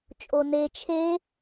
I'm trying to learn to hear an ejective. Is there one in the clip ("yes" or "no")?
yes